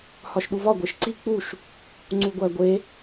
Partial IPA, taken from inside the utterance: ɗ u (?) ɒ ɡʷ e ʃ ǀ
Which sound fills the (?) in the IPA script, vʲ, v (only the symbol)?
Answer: v